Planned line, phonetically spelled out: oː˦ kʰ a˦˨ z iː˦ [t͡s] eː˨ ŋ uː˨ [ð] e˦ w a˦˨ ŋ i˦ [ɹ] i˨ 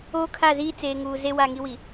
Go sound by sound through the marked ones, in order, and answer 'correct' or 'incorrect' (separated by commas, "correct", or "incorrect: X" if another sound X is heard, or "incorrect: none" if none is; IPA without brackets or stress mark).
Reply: correct, incorrect: z, incorrect: w